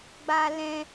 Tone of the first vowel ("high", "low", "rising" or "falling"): high